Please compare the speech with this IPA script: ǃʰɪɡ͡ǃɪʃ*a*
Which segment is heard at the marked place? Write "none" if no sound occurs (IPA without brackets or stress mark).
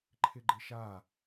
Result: a